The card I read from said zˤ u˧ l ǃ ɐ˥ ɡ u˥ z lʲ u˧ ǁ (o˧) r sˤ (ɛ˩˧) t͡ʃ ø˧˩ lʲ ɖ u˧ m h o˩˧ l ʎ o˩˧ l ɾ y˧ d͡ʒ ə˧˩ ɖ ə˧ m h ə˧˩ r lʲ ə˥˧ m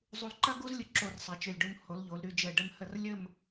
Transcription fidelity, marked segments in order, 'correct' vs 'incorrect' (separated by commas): correct, correct